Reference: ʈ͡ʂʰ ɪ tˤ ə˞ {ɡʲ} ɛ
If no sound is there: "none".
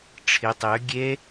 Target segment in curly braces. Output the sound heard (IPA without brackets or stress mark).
ɡʲ